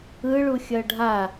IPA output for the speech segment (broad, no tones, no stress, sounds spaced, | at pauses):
ɯ ɭ u xʲ ʌ ɖʱ a